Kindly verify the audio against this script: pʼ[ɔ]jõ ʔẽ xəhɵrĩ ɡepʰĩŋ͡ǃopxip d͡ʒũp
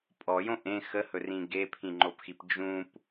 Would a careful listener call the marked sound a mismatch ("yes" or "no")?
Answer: no